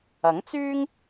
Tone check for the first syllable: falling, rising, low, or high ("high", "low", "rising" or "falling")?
rising